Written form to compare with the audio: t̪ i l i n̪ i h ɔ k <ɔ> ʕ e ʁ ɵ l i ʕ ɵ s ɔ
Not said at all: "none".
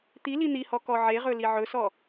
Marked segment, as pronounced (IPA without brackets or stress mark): ɔ